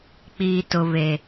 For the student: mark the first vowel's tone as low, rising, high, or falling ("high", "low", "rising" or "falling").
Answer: low